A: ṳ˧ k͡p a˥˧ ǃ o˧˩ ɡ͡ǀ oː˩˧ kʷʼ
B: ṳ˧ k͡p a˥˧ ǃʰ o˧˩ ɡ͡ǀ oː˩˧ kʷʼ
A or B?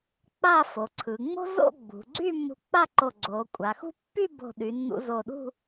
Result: A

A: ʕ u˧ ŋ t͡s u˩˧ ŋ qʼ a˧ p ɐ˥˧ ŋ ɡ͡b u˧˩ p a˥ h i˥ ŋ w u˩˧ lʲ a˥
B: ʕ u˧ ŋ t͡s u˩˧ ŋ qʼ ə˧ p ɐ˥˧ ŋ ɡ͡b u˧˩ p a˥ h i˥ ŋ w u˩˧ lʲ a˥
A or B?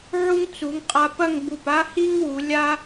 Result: A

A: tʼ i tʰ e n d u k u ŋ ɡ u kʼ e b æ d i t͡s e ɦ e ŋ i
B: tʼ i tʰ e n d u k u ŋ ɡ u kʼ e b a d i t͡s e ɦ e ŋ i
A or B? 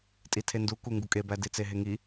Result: A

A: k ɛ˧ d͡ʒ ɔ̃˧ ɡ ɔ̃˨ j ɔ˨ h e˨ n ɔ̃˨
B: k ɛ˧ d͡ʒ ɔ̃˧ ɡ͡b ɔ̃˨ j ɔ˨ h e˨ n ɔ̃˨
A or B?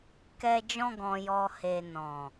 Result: A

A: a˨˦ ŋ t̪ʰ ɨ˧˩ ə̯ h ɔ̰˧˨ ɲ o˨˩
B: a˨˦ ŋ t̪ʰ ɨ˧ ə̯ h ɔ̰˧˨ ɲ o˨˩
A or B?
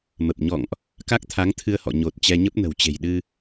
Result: B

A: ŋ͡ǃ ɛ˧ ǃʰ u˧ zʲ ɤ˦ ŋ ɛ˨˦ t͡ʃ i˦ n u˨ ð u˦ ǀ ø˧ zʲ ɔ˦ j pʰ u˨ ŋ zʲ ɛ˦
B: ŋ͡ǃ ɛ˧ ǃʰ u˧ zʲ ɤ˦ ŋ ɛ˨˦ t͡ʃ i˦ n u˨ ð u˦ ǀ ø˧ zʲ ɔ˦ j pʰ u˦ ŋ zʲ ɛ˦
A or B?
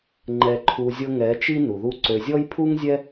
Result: B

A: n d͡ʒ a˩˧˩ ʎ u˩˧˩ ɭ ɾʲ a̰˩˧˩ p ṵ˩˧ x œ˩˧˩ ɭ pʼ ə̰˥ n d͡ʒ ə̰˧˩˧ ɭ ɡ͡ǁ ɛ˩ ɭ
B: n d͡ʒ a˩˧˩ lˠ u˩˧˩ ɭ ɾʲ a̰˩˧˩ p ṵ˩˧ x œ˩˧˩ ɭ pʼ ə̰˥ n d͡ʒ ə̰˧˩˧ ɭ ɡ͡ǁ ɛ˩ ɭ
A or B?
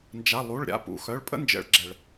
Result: B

